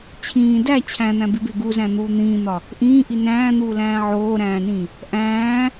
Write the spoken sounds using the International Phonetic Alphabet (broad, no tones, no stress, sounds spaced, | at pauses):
t͡ɕʰ ĩː d æ t͡ɕʰ æ̃ n̪ æ̃ b i b e ɡ u z æ̃ n̪ uː n̪ ĩː n̪ ɒ | ʔ ĩː ʔ i n æ̃ː n̪ uː l æ̃ː ʕ oː ɾ æ̃ː n ĩ | ʔ æ̃ː